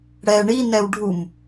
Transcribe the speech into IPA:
ɽɛ ɳinɛw ɖʱum

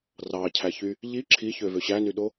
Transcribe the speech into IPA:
rɑcʰæçy | ʎi ǁʰiçøvø ɕænyɗo

